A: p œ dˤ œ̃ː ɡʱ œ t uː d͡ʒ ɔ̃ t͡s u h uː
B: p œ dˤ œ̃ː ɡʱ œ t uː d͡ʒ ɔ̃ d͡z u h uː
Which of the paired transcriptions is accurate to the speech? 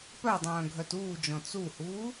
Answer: A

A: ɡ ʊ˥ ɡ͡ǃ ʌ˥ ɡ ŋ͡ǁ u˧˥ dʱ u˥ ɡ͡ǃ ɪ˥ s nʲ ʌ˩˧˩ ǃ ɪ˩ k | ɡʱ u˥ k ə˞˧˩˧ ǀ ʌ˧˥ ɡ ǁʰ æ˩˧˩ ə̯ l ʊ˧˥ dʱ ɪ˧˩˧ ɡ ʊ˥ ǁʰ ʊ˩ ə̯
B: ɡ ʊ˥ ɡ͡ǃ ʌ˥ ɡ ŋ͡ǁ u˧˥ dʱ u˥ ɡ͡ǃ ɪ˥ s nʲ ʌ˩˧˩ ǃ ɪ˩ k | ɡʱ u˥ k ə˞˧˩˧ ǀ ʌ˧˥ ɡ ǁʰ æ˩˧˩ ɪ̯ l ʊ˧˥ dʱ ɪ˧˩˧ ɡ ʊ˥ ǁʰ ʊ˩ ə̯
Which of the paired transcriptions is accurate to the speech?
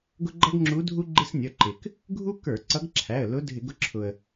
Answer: A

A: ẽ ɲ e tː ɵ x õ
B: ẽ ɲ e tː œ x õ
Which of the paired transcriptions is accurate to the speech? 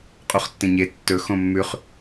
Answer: A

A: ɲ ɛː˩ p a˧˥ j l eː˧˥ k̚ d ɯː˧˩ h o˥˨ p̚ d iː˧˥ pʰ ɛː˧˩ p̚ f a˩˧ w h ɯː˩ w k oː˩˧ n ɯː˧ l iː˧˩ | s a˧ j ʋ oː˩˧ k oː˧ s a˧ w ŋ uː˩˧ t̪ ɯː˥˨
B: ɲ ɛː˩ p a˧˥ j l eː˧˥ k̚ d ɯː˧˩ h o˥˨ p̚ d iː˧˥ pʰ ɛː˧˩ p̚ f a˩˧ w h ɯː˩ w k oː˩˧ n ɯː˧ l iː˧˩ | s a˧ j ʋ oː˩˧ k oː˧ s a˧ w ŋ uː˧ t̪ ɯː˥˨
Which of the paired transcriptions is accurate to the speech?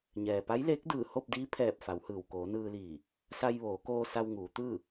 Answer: A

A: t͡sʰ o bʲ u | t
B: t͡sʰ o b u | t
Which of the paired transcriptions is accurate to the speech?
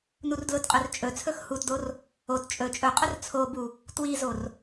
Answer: B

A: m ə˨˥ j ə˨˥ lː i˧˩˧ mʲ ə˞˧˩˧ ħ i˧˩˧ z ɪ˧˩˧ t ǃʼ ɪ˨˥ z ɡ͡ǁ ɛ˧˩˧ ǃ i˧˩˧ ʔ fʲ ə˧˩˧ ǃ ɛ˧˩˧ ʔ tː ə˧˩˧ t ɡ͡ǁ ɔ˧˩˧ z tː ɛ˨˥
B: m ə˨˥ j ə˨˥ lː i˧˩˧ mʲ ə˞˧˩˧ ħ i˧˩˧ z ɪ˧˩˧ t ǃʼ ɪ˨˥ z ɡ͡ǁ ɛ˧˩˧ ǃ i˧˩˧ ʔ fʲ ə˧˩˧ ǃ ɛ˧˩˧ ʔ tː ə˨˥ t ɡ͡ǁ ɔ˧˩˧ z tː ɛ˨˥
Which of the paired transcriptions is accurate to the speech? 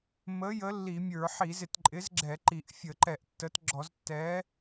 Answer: B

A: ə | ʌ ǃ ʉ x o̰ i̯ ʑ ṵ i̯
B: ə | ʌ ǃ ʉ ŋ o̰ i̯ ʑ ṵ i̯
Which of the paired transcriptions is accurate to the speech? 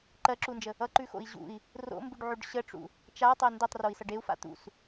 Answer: A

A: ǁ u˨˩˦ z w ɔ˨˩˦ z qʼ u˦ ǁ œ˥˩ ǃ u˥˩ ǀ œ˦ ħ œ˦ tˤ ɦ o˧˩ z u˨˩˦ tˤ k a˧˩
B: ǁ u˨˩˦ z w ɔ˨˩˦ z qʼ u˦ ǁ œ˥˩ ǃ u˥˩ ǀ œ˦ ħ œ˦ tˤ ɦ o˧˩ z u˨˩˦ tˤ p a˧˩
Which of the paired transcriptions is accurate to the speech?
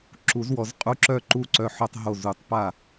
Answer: B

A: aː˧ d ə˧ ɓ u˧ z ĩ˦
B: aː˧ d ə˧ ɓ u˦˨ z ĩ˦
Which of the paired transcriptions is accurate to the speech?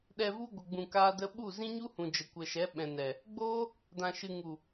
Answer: B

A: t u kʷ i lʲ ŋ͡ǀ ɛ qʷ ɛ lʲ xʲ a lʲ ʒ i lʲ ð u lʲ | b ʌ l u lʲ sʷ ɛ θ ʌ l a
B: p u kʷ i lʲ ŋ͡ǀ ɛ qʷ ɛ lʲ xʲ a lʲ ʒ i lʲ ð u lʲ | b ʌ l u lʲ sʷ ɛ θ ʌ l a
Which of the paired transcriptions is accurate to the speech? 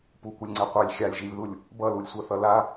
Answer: B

